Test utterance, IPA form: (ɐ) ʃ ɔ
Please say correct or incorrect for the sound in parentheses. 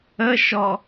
incorrect: ə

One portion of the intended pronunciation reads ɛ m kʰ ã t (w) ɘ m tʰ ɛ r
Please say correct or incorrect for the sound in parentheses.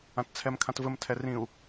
incorrect: v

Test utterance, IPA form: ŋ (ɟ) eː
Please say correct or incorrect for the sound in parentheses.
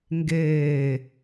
incorrect: ɡ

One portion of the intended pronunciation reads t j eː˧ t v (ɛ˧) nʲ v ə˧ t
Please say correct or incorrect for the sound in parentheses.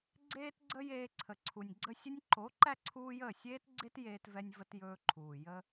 correct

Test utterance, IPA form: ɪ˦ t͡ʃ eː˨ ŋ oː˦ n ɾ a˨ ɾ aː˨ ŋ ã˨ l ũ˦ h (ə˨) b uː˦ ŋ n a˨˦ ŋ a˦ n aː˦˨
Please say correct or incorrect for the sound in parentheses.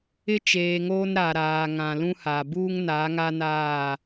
incorrect: a˨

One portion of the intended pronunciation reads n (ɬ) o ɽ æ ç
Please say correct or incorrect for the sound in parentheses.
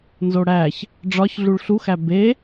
incorrect: z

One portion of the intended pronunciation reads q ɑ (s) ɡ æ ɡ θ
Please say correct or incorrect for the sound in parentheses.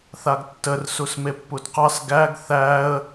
correct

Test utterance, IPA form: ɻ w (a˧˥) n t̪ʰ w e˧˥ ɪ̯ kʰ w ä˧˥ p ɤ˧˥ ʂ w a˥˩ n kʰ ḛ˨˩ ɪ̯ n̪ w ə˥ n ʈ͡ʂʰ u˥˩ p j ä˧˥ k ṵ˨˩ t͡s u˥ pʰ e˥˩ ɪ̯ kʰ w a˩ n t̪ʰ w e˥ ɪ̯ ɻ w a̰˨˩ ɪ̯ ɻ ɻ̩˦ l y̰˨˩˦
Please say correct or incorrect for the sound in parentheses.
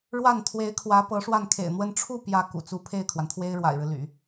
incorrect: a˥˩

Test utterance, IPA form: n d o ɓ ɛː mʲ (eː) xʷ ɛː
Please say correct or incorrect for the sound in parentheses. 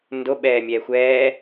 incorrect: ɛː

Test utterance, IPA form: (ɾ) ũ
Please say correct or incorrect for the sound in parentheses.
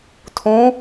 incorrect: tʰ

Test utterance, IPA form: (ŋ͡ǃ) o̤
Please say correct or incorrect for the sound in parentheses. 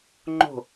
correct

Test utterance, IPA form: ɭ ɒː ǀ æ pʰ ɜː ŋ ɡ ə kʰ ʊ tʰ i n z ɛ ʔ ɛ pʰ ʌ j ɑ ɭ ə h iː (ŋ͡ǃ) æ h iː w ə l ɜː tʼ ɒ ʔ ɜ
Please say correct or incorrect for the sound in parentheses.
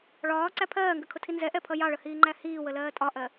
correct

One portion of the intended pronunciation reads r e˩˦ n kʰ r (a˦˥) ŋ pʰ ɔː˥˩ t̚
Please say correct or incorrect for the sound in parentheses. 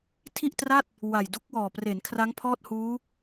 correct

